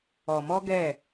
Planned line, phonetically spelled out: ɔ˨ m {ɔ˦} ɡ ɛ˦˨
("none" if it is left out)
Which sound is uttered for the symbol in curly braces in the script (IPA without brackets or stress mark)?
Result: ɔ˦